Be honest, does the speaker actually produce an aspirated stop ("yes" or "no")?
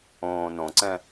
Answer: no